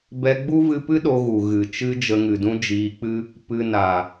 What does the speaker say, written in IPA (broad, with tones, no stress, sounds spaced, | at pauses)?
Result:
b ɛ˧ ɡ͡b u˦ v ɨ˧ p ɨ˦ ɗ o˧ ɣ u˨ ɣ ɨ˨ t͡ʃ ɨ˦ d͡ʒ ə˧ ŋ ɨ˨ d ũ˦ d͡ʒ iː˧ k͡p ɨ˦ | p ɨ˧ n a˨